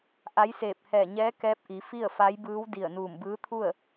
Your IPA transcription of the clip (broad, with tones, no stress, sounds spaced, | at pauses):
ʔ a˧˥ j s eː˧˩ p̚ h ɛː˧˩ ɲ ɛː˧˥ k ɛː˧˥ p̚ ʔ i˩˧ f i˥˨ ə̯ f a˧˥ j b ɯː˧˥ w d i˧˩ ə̯ n uː˧˩ m b ɯː˧˥ t̪ʰ u˥˨ ə̯